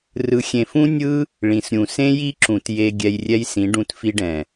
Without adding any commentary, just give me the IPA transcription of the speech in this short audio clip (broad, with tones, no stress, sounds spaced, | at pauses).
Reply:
r ɯ˨ xʲ ẽ˨ f ũ˦ nʲ ɯ˦ | ɭ ĩ˨ s ɾʲ ũ˨ s ẽ˦ j i˦ ǁ ũ˨ t j e˧ ɡʲ ɛ˧ j rʲ ɛ˦ j s ĩ˨˦ ɖ ũ˧ t f i˧ ɖ ɛ̃˨